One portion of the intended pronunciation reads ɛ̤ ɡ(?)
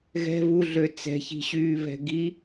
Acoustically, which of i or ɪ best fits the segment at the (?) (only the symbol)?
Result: i